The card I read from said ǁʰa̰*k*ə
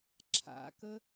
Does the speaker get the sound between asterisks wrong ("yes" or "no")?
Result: no